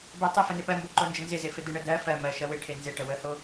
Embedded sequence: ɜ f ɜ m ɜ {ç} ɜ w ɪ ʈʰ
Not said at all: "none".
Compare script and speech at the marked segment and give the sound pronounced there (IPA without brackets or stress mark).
ʃ